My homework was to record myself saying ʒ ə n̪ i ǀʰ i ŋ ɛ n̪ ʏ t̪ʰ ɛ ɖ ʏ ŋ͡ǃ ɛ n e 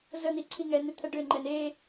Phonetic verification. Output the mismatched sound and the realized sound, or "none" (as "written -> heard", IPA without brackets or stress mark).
ʒ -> z